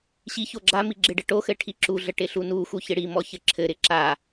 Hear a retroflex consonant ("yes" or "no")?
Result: yes